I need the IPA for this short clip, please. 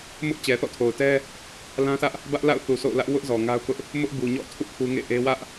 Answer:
m ʊ˦ ʔ t͡ɕ ɛ˨ θ ɔ̰˦˨ tʰ o˨ ʊ̯ t ɛ˦ | l ã˦ s ä˦ ʔ | b ä˦ ʔ l a̰˦˨ ʊ̯ θ u˨ s o̰˦˨ ʊ̯ l ä˦ ʔ w ʊ˦ ʔ z ɔ˨ ŋ a˦ ʊ̯ k ʊ˦ ʔ | m ʊ˦ ʔ b u˨ ɲ ɔ̰˦˨ tʰ ṵ˦˨ pʰ u˦ ŋ ḛ˦˨ ʔ e˦ w ä˦ ʔ

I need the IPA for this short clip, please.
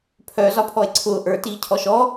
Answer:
pʰ œ z ɒ pʰ ɔ e̯ ǀʰ ʊː ʔ ə˞ t iː cʰ ɔ ʃ ɔ

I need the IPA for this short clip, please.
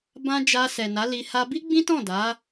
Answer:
b ã˦ d͡ʒ a˧ s ɛ˨ n a˨˦ l i˧ h a˧ b i˦ ɡ͡b ĩ˦ t ɔ̃˦˨ d a˨˦

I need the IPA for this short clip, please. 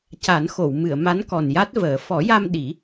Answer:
c a˨˩˦ n x o˨˩˨ w m ɨ˨˩˨ ə̯ m a˧˥ n k ɔ˨˩ n j a˦˥ t̚ v əː˨˩˦ f ɔ˨˩˦ j a˧ m ɗ i˨˩˦

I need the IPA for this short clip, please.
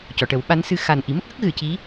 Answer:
c ɔ˨˩˨ ʈ ə˨˩˦ w ɓ a˧˥ n s ɨ˧ x a˨˩ n ʔ i˨˩˦ m ə˦˥ k̚ ɣ ə˦˥ k̚ ɣ ɨ˨˩˨ c i˧˥

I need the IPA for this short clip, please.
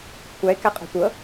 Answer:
kʷʰ æ ɪ̯ k æ qʼ ɔ̤ tʷ ɤ

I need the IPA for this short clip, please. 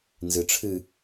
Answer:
n z ɨ ʈ͡ʂʰ ɨ

